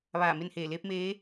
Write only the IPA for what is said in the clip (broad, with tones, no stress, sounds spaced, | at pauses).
ʋ aː˧˩ m e˥˨ n h eː˧˩ l eː˧˥ p̚ m eː˧˥